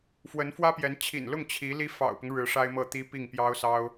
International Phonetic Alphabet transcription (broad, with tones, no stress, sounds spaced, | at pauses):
f w ə˧˥ n f w ä˥ p j ɛ˧˥ n t͡ɕʰ ḭ˨˩ n l ʊ˥˩ ŋ t͡ɕʰ i˧˥ l i˥ f ɑ̰˨˩ ʊ̯ p ʊ˦ ŋ ɻ ɻ̩˧˥ ʂ a˥ ɪ̯ m ɤ˥˩ t̪ i˥ p i˥˩ ŋ p j ɑ˥ ʊ̯ s ɑ˥ ʊ̯